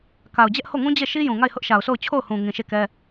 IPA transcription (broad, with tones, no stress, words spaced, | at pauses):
ka˨ʊ̯d͡ʑɛ˦ʔho˦˨ŋũ˦ d͡ʑe˦˨ʃi˦jũ˨ ŋa˦˨ɪ̯hʊ˦ʔʃa˨ʊ̯so˦˨ʊ̯ t͡ɕʰo˦˨ʊ̯hũ˨ ŋĩ˨ʃe˦˨kɛ˦